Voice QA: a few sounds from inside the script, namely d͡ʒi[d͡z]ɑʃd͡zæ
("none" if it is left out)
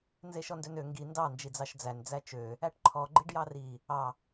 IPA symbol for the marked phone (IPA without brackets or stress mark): d͡z